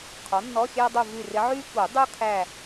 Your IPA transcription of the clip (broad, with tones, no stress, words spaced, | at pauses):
qʰɔ˩˥nːɔ˧˥˧xʲæ˥dˤu˦˨ vy˦˨rɪ˧˥ ʕy˥ku˨˩˦dˤu˥kʰæ˦˨